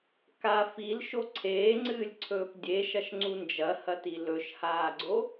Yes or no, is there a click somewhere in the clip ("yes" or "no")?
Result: yes